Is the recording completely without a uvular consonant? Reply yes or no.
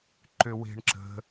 yes